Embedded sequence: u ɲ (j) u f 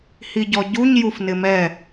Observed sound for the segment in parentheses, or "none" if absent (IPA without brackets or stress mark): j